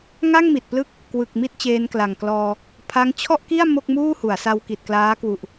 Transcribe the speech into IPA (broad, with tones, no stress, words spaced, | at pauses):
ŋa˥˩ŋmi˨˩t̚plɯ˦˥k̚ | kwɯ˨˩k̚ mi˥˩t̚t͡ɕeː˧nkla˨˩ŋklɔː˧ | pʰa˦˥ŋ t͡ɕʰɔ˥˩ʔki˥˩a̯ mo˥˩k̚muː˥˩hu˩˦a̯sa˧w ki˨˩t̚klaː˦˥kwu˨˩ʔ